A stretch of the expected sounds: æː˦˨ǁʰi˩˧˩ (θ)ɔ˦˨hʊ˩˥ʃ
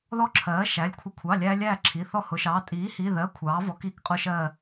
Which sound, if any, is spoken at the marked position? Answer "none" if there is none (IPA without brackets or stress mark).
θ